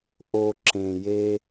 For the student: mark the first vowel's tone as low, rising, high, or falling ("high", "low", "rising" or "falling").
low